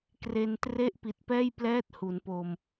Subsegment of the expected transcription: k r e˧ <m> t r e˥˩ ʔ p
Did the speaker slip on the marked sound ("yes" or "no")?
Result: yes